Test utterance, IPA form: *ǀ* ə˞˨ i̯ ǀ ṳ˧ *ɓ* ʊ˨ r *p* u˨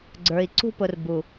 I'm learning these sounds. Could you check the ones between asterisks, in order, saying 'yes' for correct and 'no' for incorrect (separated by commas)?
no, no, no